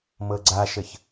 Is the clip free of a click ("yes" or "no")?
no